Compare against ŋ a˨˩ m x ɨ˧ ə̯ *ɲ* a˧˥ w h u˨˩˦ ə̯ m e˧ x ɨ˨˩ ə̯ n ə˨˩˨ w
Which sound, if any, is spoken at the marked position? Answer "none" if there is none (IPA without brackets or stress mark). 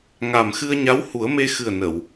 ɲ